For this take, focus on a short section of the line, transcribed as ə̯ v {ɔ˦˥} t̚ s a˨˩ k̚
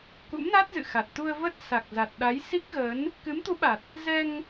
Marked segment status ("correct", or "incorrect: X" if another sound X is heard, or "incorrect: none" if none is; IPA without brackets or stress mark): incorrect: ə˦˥